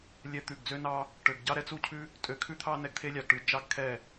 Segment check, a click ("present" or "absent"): absent